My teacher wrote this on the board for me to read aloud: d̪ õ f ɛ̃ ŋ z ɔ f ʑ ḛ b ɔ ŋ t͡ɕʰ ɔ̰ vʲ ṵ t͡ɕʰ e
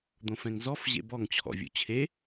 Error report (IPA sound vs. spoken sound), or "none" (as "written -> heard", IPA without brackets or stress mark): none